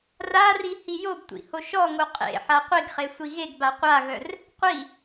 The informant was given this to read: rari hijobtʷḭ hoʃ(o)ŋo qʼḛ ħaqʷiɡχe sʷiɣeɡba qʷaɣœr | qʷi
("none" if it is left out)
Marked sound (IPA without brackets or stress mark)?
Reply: ɔ